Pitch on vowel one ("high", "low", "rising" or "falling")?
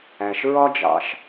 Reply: low